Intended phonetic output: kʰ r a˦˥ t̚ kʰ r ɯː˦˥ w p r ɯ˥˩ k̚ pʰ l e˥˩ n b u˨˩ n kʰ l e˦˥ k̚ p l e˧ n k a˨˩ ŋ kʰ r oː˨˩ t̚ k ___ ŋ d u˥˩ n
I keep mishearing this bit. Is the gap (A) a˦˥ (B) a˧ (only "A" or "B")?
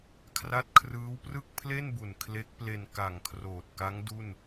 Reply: A